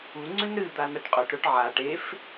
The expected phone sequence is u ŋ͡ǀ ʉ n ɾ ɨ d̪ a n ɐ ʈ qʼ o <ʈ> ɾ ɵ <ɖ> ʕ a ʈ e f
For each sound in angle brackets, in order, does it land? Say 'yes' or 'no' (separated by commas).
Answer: yes, no